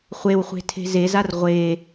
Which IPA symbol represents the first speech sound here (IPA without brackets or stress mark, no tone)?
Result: χʷ